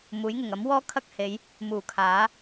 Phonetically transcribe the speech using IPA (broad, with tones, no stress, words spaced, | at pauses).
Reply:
muː˨˥jŋɪ˨˩ŋ ɐ˨˥mwɔː˥kʰɐ˥k̚he˨˧j | muː˨˩kʰaː˨˥